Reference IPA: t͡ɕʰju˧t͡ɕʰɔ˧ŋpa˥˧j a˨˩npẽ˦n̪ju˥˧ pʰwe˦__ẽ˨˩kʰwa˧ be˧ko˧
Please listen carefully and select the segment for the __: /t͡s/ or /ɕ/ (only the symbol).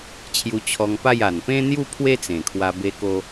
t͡s